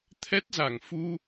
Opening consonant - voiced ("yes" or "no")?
no